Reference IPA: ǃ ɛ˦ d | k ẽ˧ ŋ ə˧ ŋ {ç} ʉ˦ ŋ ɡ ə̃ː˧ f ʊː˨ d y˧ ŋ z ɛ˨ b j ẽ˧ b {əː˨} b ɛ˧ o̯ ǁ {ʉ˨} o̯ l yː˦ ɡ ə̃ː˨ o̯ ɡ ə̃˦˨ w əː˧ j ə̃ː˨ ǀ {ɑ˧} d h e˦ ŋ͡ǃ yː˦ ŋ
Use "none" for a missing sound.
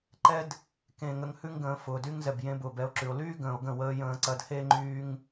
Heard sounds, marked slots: h, ʊː˨, ʉ˨, ɐ˧

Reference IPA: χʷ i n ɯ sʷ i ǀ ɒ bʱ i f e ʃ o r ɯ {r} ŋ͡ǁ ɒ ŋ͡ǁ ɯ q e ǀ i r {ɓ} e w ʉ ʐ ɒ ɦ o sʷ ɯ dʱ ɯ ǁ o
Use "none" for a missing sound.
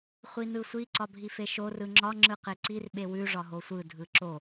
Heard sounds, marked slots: none, ɓ

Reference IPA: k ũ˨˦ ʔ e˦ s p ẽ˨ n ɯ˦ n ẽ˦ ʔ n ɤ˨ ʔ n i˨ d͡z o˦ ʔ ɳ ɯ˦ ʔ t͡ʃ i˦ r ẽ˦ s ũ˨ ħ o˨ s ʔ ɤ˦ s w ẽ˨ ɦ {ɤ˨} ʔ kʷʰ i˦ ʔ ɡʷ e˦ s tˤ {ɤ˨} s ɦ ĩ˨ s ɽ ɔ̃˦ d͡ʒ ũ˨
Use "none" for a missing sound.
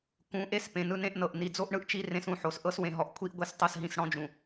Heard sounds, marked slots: ɔ˨, ɤ˨

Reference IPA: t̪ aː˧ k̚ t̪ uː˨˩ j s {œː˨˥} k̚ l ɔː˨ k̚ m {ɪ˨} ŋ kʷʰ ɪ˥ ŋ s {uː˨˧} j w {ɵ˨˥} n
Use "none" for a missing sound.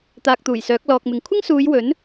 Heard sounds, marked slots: œː˨˥, ɪ˨, uː˨˧, ɵ˨˥

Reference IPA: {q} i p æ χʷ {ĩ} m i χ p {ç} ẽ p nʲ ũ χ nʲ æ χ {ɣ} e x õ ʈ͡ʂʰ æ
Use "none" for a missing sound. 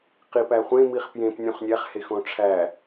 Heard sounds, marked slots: q, ẽ, j, h

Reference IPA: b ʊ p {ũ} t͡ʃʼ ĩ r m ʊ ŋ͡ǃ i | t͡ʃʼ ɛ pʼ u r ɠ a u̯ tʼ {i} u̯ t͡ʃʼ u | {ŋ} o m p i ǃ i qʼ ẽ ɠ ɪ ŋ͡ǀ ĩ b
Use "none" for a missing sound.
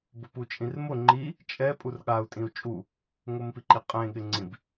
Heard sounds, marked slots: u, ĩ, ŋ

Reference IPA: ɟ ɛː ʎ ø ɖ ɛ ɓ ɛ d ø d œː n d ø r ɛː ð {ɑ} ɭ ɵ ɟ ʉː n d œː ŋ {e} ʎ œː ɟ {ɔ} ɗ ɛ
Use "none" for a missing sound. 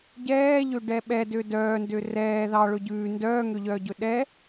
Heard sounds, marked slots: ɑ, ø, ɵ

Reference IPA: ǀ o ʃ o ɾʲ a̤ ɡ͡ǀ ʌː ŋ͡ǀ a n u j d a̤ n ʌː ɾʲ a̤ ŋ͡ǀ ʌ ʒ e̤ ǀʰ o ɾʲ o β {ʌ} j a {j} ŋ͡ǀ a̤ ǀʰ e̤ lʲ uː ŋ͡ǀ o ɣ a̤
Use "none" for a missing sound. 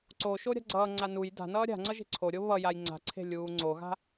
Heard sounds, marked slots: ʌ, j

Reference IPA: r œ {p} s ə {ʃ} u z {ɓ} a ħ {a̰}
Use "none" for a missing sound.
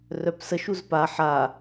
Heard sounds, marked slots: p, ʃ, p, a

